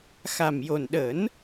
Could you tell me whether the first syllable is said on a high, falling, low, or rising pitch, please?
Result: low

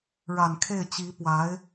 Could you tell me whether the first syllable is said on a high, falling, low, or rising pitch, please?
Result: low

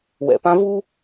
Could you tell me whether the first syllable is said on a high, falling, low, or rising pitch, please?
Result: low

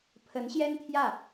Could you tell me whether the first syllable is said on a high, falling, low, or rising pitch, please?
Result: rising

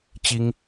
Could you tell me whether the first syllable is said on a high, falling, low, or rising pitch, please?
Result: high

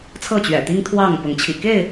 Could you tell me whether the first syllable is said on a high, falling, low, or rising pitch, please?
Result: falling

